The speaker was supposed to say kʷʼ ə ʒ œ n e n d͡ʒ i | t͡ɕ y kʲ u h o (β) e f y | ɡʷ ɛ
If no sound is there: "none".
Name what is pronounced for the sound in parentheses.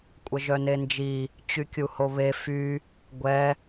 β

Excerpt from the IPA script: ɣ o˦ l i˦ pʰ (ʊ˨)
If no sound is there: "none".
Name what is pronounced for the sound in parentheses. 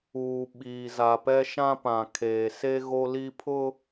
ʊ˦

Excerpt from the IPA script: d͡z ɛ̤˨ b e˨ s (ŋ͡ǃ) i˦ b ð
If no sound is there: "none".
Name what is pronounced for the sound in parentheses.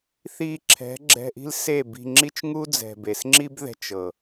ŋ͡ǁ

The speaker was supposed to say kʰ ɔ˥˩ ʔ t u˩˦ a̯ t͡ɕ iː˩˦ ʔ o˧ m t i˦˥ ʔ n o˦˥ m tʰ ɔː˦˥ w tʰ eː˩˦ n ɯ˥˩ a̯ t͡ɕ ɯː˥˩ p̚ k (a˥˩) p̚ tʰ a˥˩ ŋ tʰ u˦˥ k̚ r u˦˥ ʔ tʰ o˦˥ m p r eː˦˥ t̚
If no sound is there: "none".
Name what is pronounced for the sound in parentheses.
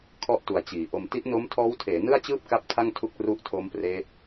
a˥˩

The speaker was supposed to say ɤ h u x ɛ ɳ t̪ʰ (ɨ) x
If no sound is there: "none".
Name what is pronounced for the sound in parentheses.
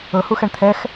ɛ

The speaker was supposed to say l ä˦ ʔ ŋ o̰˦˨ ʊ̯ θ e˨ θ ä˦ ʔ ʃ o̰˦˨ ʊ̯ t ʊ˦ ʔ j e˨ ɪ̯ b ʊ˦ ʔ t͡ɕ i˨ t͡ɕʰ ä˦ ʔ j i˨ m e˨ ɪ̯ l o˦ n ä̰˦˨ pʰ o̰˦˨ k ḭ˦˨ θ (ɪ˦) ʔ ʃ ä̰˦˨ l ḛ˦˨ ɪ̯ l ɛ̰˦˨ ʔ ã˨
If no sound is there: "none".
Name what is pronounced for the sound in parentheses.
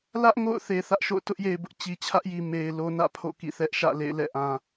ɛ˦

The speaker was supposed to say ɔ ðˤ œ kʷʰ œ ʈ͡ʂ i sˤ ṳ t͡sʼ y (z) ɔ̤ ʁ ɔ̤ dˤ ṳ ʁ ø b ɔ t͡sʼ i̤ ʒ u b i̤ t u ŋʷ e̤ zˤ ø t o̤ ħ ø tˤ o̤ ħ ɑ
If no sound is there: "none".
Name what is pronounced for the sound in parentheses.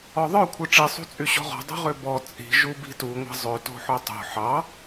ɕ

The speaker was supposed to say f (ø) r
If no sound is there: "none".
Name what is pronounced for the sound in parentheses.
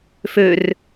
ø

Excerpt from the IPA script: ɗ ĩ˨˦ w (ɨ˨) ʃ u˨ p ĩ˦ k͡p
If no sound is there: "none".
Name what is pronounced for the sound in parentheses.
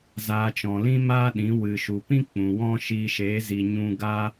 ɨ˨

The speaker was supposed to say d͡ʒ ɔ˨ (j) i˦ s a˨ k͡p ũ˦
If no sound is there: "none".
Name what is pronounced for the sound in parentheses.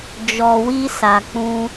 w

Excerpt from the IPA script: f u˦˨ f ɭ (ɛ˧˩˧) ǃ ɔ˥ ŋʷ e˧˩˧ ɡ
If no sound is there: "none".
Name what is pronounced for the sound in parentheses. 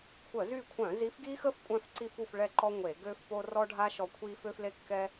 ɛ˦˨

